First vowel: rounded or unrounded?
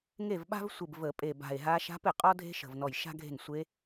unrounded